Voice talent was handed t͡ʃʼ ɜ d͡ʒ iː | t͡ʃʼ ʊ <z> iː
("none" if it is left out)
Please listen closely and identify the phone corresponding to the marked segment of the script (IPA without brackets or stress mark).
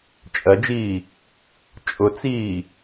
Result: t͡s